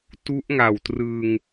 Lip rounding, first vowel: rounded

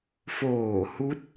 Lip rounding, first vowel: rounded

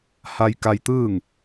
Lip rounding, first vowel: unrounded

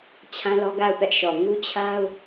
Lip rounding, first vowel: unrounded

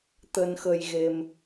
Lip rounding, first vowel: unrounded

